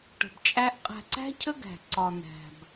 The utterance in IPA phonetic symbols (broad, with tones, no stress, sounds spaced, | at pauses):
ʈ ə̤˧ b t͡ʃʼ æ˦ ʔ qʼ æ̤˧ ǀ æ̤˦ cʰ ə˦ ɡ æ̤˨ ǀ ɒ˧ n̪ æ̤˧ b